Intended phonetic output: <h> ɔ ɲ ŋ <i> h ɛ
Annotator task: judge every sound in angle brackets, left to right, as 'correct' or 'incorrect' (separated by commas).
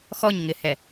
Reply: incorrect, incorrect